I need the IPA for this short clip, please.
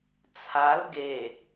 t͡sʰ a l ɡ e

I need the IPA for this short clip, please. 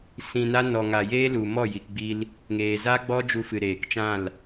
s ĩ˨ n a˧ n ɔ˨ ŋ a˨ j eː˦ l u˨ m ɔ˦˨ j i˨ k ɡ͡b i˧ l | ŋ eː˨ z a˦ ɡ͡b ɔ˦ d͡ʒ u˧ f ɨ˨ ɾ eː˨ k t͡ʃ ã˦˨ l

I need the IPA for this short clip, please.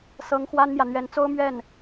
s ɤ˧˥ ŋ x w a˥ n m j ä˨ n̪ ɥ ɛ˧˥ n t͡s o˥ ʊ̯ m ɥ ɛ˥˩ n

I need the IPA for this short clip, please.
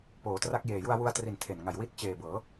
p oː˩˦ t r a˦˥ k̚ j eː˨˩ j u˧ a̯ w u˧ a̯ t r i˨˩ n tʰ e˨˩ n ŋ a˨˩ j w i˦˥ t̚ t͡ɕ eː˨˩ b ɤː˩˦

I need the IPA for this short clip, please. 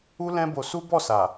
u˦ l ɛ̃˦ b o˧ s u˦ b ɔ˦˨ s a˨

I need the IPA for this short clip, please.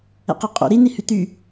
ɛ̰ q i qʼ o̰ ɾ i n i h y t̪ y

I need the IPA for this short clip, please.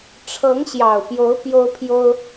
ʈ͡ʂʰ ɤ˨˦ ŋ ɕ j ɑ˨˩ ʊ̯ p j o˨˦ ʊ̯ p j o˦ ʊ̯ pʰ j o˦ ʊ̯

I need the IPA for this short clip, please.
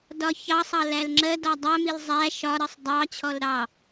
d ɒ ç ɑ sˤ ɑ l æ l ŋ͡ǁ ɜ d ɒ dˤ æ m i l zˤ æ ʃ ɒ ɾ ɜ sˤ dˤ ɑ t͡ɕʰ ɔ l ɾ ɑ

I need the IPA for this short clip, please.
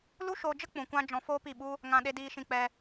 l u˦ ʃ oː˧ d͡ʒ ə˦ k͡p ũ˨ kʷ ã˧ d͡ʒ ɔ̃˧ f oː˦ p i˦˨ ɓ u˦ | ŋ ã˧ ɗ e˧ d iː˧ ʃ ĩ˧ k͡p ɛ˧

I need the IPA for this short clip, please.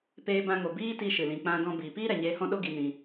p eː˧ b ã˧ ŋ o˨ b iː˦ t i˧ ʃ ɨ˨ l ĩ˧ k͡p ã˦ d ɔ̃˦ b iː˨ p iː˦ ɾ ɛ˨ ɲ eː˧ h ɔ̃˦ ɗ o˦ ɡ i˧ n ĩ˧

